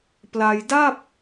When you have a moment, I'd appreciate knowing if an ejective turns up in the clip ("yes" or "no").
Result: no